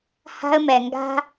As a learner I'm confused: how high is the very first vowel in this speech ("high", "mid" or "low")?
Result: low